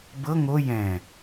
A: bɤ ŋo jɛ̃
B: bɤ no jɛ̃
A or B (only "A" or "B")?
A